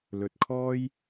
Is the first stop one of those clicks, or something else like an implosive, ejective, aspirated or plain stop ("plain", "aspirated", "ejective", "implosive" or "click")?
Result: plain